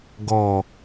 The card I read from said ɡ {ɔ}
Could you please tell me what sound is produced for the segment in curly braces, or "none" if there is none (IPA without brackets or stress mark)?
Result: ɔ